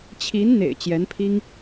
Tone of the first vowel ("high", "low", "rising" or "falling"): rising